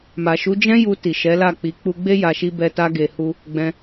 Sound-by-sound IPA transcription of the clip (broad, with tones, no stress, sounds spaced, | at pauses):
m a˨ ʃ u˨˦ d͡ʒ ɛ̃˦ j u˧ t i˨ ʃ ɛ˨˦ l a˦˨ k͡p i˨˦ k͡p u˧ ɡ͡b e˦ j a˧ ʃ i˦ b ɛ˦ t a˦ ɡ e˧ h u˦ | ɡ͡b ɛ̃˧